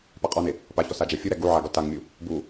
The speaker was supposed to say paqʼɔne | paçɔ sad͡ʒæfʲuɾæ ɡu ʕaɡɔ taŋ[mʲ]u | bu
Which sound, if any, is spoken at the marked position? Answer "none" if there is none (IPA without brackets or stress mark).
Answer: mʲ